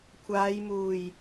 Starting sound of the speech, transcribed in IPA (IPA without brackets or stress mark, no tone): kʷʰ